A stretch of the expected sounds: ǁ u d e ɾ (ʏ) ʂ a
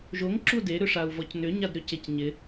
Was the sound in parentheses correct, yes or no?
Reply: yes